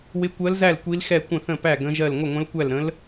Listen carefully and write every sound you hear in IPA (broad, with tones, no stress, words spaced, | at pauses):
wɪ˧˥kʷɜ˧˥lzæ˥˩l kʷi˧˥lxɛ˥˩ kʷə̃˥˩θə̃˥˩pæ˥˩ ɡə̃˧˥ʒɜ˥˩l ŋʷɪ˥˩ŋʷə̃˧˥lkʷæ˥˩lɾə̃˧˥l